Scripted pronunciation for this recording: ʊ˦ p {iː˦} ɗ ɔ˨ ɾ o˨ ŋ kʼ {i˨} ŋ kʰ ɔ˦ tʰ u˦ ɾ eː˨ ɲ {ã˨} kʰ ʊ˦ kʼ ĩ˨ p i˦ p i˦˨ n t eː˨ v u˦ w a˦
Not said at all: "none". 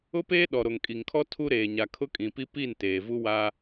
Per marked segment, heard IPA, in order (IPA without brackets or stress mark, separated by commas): eː˦, i˨, a˨